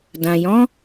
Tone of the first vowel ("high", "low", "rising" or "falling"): low